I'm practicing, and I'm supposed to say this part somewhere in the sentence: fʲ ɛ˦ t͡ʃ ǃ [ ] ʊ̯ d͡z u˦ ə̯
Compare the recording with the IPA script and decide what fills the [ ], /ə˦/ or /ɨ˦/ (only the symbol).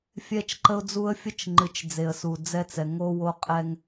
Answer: ə˦